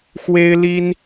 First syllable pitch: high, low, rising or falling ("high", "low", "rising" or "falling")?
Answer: high